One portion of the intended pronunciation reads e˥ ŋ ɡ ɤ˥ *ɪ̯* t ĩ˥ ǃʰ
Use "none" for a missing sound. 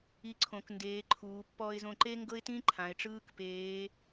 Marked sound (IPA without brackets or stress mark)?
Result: ɪ̯